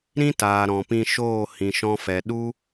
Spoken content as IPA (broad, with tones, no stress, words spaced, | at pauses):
ɾĩ˦taː˨ ɾɔ̃˨pĩ˧ʃoː˦˨ hĩ˨ʃɔ̃˧fɛ˨ ɗu˦